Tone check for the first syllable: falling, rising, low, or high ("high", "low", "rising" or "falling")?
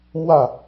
falling